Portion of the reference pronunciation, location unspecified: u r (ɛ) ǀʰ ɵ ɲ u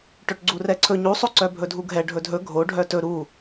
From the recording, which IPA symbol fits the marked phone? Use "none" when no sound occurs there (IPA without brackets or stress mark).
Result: ɛ